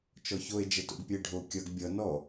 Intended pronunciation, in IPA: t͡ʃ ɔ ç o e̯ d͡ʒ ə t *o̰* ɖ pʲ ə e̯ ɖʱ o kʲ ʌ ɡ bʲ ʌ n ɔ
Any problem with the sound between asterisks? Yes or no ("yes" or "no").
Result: no